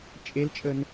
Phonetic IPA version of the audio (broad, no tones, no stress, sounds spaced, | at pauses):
t͡ʃʼ e l t͡ʃʼ ə n